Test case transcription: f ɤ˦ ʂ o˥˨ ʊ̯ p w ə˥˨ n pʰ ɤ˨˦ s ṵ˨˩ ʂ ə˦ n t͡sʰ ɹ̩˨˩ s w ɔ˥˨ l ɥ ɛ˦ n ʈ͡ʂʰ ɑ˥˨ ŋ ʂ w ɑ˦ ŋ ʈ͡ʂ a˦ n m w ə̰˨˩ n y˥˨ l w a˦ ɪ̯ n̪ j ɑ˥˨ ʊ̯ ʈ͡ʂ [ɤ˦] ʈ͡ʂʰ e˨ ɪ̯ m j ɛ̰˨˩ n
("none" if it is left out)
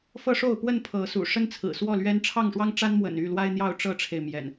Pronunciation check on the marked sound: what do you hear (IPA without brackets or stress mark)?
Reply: ɤ˦